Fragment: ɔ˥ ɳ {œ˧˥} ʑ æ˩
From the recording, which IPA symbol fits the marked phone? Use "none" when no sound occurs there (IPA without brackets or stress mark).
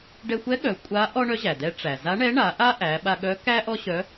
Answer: œ˧˥